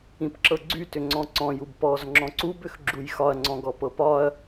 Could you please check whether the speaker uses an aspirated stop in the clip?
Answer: no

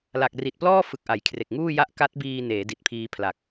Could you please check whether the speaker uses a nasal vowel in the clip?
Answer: no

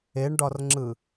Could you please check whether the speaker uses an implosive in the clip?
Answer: no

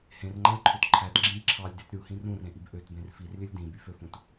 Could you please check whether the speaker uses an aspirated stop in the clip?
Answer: yes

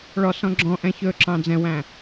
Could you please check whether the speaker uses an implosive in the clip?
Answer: no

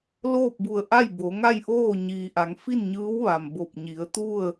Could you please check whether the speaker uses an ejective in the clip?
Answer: no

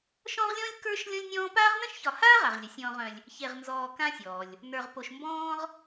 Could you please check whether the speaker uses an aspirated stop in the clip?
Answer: no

